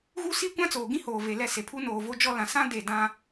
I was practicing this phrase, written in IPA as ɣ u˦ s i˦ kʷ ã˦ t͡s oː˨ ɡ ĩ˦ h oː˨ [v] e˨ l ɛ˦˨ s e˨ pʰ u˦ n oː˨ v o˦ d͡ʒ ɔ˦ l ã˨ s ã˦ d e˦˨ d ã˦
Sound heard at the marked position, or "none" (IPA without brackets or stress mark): v